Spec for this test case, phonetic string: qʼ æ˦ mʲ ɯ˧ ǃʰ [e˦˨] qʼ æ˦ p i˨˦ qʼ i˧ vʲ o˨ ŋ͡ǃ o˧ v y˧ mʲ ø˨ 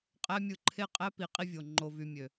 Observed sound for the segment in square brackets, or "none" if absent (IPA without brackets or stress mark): e˦˨